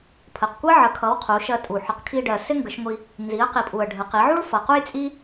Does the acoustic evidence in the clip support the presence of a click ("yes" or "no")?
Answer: no